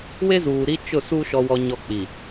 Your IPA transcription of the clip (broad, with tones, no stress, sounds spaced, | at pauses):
w e˦ z uː˨ ɾ i˦ t͡ʃ ʊ˦˨ s u˦ ʃ ɔ˦ w ɔ˦ ɲ ɔ˦ k͡p i˨